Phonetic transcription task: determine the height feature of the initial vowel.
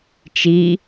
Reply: high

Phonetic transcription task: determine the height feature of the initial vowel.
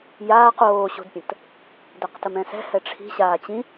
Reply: low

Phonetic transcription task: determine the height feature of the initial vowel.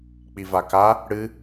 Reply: high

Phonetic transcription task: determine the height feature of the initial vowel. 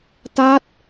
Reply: low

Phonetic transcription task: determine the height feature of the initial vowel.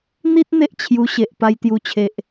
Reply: high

